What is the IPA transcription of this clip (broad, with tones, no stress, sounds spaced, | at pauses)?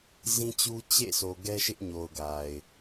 z ĩ˦ t͡ɕ u˦ t͡ɕ ḛ˦˨ sʰ o˨ ɡ ɛ˦ ʃ ɪ˦ ʔ ɲ o˨ ʊ̯ ɡ a˨ ɪ̯